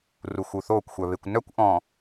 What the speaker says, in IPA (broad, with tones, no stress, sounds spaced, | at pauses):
r u˨ x u˨ θ oː˦˨ kʷ xʷ œ˨ β e˨ kʷ n œ˦ kʷ ʔ ɔ̃ː˨